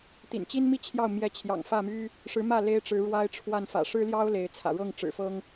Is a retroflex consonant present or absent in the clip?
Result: present